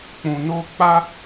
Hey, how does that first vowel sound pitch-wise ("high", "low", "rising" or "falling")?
low